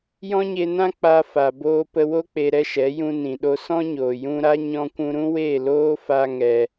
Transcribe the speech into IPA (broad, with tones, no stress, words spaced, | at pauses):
jɔ̃˦ɲe˧nã˦ k͡pa˧fa˨ boː˧pə˧wo˦ k͡pe˧ɾɛ˦ʃɛ˨˦ jũ˧nĩ˨ɗo˧ sɔ̃˦ɲoː˨ jũ˧ ɾa˦ɲɔ̃˧kʷũ˧ɾũ˦ we˦˨loː˦fa˧ ŋɛ˧